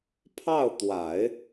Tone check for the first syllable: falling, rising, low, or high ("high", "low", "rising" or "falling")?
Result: falling